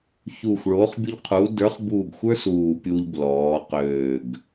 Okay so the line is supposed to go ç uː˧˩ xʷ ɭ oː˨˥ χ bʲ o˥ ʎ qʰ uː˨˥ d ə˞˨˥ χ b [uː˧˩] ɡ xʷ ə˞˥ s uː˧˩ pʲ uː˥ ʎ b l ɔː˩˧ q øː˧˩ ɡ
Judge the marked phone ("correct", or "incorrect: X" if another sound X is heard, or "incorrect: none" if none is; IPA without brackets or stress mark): correct